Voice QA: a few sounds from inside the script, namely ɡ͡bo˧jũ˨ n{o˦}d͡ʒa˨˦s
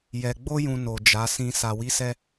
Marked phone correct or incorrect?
incorrect